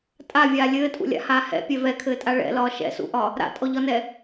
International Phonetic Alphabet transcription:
tʼ a vʲ aː lʲ ɘː tʼ ṵ lʲ a̰ h aː h ɛ̰ pʲ ɛ v ɛ kʰ ɘː tʼ a ɭ ɛ̰ l ɒː ʃ ɛ̰ s ṵ ʔ ɒ | ɾ a̰ tʼ ɔ ʎ ɒ n ɛ

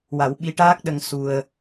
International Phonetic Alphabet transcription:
w a˨˩˦ w ɓ i˧˥ ʈ aː˦˥ k̚ ɗ ə˧ ŋ s u˧ ə̯

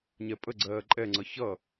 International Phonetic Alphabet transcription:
ɲ ɛ pʼ ə ɡ͡ǀ ɜː ǃʼ ɛ ŋ͡ǀ ʌ ç ʌ

